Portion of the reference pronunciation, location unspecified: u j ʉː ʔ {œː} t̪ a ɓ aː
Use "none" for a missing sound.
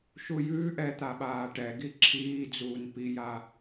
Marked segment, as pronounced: ɛː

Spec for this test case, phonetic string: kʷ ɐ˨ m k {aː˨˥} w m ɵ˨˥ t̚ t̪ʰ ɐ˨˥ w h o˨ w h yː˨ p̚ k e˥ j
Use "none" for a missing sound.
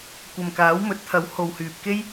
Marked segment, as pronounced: aː˨˥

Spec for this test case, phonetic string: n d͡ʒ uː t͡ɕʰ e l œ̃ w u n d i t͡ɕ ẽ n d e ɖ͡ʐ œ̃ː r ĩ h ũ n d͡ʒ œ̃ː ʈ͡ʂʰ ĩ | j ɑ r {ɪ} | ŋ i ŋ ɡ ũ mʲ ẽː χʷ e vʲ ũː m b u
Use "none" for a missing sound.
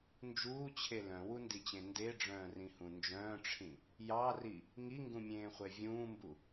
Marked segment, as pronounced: i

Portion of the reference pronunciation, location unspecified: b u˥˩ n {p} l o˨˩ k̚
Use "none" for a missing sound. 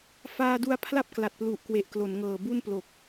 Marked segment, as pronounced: p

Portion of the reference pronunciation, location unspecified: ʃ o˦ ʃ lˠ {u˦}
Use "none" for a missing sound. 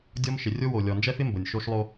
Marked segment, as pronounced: o˦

